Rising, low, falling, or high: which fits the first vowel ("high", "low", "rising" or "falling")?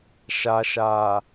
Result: low